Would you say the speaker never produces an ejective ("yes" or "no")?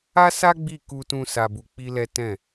yes